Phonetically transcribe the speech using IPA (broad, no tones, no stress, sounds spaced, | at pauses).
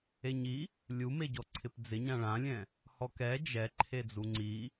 e ɲ i | lʲ u m e ɟ ɔ ǀʰ ɪ p d͡z ɪ ɲ ã ɭ ã lʲ ɛ̃ | h ɔ k ɛ d͡ʒ ɛ ǃʰ e d͡z u ŋ͡ǀ i